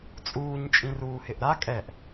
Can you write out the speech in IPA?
t͡sʼ uː ɲ t͡ʃʼ ĩ r uː h ɪ ʔ ɾ a kʼ ɛ ʔ

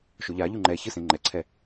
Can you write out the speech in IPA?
ʃ o ʎ a ʎ u ŋ͡ǃ ɛ ç ɯ s ẽ ŋ͡ǃ ɛ ǀʰ ɛ

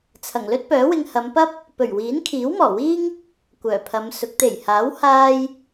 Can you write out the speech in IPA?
t͡sʰ ɐ˨˩ ŋ l ɵ˥ t̚ p œː˨˥ w ɪ˧ ŋ h ɐ˨˧ m p ɐ˥ p̚ | p ɵ˨˩ ɥ w iː˨˥ n kʰ iː˨˥ w m ɔː˨˩ w iː˥ ŋ | kʷ œː˨˩ pʰ ɐ˨˧ m s ʊ˨˥ k̚ t̪ e˨˩ j h aː˨˥ w h aː˧ j

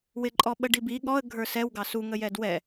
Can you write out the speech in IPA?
w ɪ ǃʼ ɔ ɓ ə ɖ i b i ɠ ɔ ə̯ ɡʱ ə˞ s ɛ w ɡ ɑ s u ŋ ə j ɛ d w ɛ

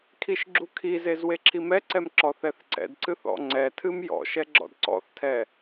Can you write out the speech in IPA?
kʰ i ʃ ɡ͡ǁ u kʰ i z e z w e ǁʰ i m ɛ ǀ ɛ m ǁ ɔ θ ɛ θ ǀ ɛ̰ d ǀ ɨ θ ɔ̰ ŋ͡ǀ ɛ tʰ ɨ m j ɔ̰ ʃ ɛ ɡ͡ǁ ɔ̰ d ǀ ɔ̰ θ tʰ ɛ

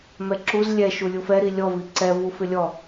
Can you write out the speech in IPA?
m ɛ ǁ u z lʲ ɛ ʃ u lʲ u f ɛ ɾ i lʲ ɔ v i ǀ ɛ v u f ɪ lʲ ɔ

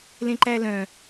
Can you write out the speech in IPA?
l ẽ ǃ æ l œ̃

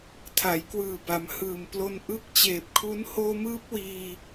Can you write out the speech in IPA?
tʰ a˩˦ j k w ɯː˨˩ b a˩˦ m h ɯː˨˩ m p l o˧ n ʔ ɯ˦˥ k̚ t͡ɕ eː˨˩ p̚ kʰ u˦˥ n h oː˧ m ɯː˦˥ p̚ w iː˧

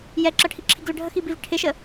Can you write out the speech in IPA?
j ɛ ǁ ʌ ʈʰ i ǁʰ i ɡ l ə ɖʱ ə x i b i v ʈʰ ɪ ʃ ə

